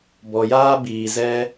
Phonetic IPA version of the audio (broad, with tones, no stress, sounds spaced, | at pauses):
b ɔ˨ j aː˦ b iː˨ z ɛ˧